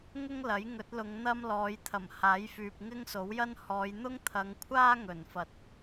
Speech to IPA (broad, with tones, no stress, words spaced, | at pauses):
ŋʊ˥ŋ lɐ˨˥jŋɵ˨˥t̚lʊ˨˧ŋ n̪ɐ˥mlɔː˨˧jt̪ʰɐ˨˩m haː˨˥jfyː˨p̚ ŋɪ˥ŋso˨˥wjɐ˥n hɔː˨˧jn̪ʊ˥ŋt̪ʰɐ˨˧ŋkʷʰaː˥ ŋɵ˨˩nfɐ˨˥t̚